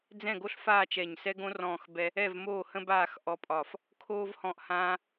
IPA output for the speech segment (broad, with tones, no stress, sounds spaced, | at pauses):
d͡z ɛ̃˦˨ ɡ o˦ ɬ f aː˦˨ t͡ʃ ɛ˦˨ ɲ s ɛ˦ ɡ õ˦ r ɔ̃ː˦˨ x b ɛ˦ | ɛ˦˨ v m oː˦˨ h ə̃˦ b aː˦˨ x ʔ ɔ˦ pʼ ɒː˦˨ f | kʰ oː˦ v h ɔ̃ː˦˨ ʔ h ãː˦